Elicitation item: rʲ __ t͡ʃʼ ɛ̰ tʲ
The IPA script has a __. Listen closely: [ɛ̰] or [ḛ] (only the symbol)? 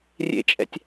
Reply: ḛ